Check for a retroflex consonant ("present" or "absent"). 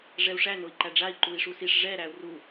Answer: present